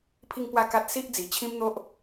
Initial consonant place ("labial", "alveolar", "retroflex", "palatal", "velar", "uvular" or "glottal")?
labial